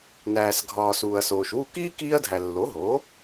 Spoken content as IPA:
n æː˩ s ɡʱ ɒː˩ s uː˩ ɐ̯ s oː˩ ʃ w u˥˩ k iː˥ k iː˧ ɐ̯ dʱ æ˩ lː o˩˥ ɦ oː˩˥

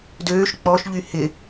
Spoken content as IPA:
d øː ʃ k͡p ɔ ʃ ʎ y h ɪ

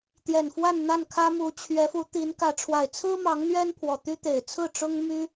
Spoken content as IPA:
t̪ j ɛ˨˩ n f w a˥˧ n n̪ a˥˩ n kʰ ä˥ m u˧˥ t͡ɕʰ ɥ ɛ˧˥ f u˧˥ t̪ i˧˥ n k ä˧˥ ʈ͡ʂʰ w a˨˩ ɪ̯ t͡sʰ ɹ̩˥ m ɑ˧˥ ŋ n̪ ɥ ɛ˥ n pʰ w ɔ˨˩ t̪ y˥ t̪ e˨˩ ɪ̯ t͡sʰ ɹ̩˥˩ ʈ͡ʂ ʊ˥ ŋ m y˥

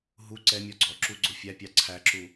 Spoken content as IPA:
ɦ u ǀ ɛ mʲ ɔ ɡ͡ǀ ɔ ǁ u ɡ͡ǀ ʊ fʲ æ pʲ ɑ ǀʰ æ ǁ u

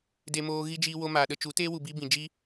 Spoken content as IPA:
d e˧ m oː˧ ɣ i˦ d͡ʒ iː˧ w o˧ m aː˨ ɗ ə˧ t͡ʃ u˨˦ t eː˦ w u˨ b iː˧ b ĩ˨ d͡ʒ i˦

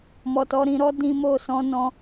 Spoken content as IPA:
m ɔ˨ t ɔ˧ ɾ ĩ˧ ɾ ɔ˦ d ĩ˧ m o˧ s ɔ̃˦ n ɔ̃˦

